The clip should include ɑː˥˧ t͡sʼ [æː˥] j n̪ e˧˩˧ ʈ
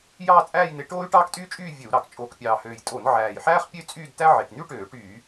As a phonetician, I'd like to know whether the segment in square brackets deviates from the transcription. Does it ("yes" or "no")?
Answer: yes